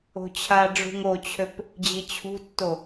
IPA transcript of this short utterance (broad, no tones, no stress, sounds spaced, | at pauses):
o̤ t͡ɕʰ a ɖ͡ʐ ṳ ŋ o t͡ɕʰ ø p | d͡ʑ i t͡ɕʰ ṳ tː o